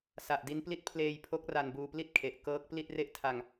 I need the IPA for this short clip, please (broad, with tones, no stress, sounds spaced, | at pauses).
s a˨˩ ʔ d i˦˥ n p l i˦˥ t̚ pʰ l eː˧ j pʰ o˦˥ k̚ r a˧ n b uː˧ p l i˥˩ t̚ kʰ e˨˩ ʔ k ɤː˦˥ k̚ p l i˥˩ t̚ r e˥˩ ʔ tʰ a˧ ŋ